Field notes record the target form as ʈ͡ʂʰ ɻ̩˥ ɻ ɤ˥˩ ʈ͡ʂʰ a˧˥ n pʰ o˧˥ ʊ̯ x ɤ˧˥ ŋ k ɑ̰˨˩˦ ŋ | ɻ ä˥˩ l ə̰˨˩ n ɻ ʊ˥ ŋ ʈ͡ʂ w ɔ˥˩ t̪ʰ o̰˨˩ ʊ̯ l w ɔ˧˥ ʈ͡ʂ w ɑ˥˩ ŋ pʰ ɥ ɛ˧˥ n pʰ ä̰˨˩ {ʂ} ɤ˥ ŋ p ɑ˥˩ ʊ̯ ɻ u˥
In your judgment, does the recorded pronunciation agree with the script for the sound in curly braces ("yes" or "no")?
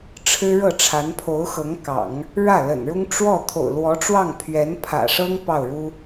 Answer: yes